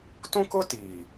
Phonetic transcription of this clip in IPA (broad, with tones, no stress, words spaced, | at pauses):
tũ˦kʊ˦tiː˨